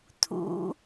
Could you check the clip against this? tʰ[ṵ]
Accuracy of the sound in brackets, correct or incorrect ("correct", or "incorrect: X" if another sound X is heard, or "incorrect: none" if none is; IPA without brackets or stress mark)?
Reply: correct